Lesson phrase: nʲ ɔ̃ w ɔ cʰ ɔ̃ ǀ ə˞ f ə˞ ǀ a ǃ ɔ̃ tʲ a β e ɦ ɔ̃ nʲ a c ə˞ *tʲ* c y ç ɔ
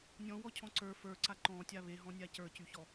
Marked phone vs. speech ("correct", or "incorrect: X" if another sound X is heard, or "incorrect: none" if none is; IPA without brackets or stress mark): incorrect: none